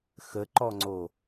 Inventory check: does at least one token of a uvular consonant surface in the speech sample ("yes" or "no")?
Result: no